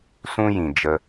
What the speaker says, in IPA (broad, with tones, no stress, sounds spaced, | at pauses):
s ũ˦ j ĩ˨ d͡ʒ ə˧